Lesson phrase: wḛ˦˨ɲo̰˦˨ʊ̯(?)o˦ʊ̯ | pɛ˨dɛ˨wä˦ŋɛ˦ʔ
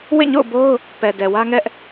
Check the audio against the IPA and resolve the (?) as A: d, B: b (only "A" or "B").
B